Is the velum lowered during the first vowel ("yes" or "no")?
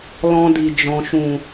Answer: yes